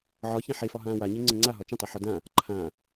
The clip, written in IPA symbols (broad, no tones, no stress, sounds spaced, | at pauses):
ʕ ɒ ç ã ħ e f ɒ ɦ ãː w a ɲ e ŋ͡ǀ ə̃ ŋ͡ǀ a ɦ ɒ t͡ʃ ə̃ tˤ ɛ ħ ɒ d ã | ǃʰ ã